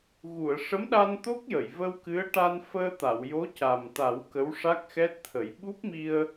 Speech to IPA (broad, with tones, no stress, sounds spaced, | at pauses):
ɣ u˨˩˨ ə̯ ʂ ə˧˥ m ɗ a˧ n t̪ o˦˥ k̚ j ə˨˩˨ j v ə˧ w k ɨ˧˥ ə̯ ʈ a˧ n f əː˧ t̪ a˨˩˨ w j o˧˥ c a˨˩ m t̪ a˨˩˦ w k ə˧˥ w ʂ a˦˥ k̚ x ɛ˦˥ t̚ t̪ʰ ə˨˩˦ j ɓ u˦˥ p̚ m i˧ ə̯